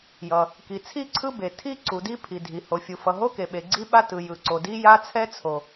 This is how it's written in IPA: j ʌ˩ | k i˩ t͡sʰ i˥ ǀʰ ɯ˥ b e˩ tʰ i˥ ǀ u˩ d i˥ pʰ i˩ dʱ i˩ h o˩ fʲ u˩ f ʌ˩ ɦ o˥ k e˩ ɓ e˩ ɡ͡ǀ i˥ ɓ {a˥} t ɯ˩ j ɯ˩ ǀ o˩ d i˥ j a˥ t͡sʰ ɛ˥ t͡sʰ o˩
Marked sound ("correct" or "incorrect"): correct